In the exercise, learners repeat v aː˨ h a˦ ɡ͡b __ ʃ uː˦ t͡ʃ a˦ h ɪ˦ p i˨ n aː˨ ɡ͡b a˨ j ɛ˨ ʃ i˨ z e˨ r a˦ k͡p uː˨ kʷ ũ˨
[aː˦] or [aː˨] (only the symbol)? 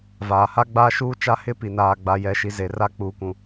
aː˦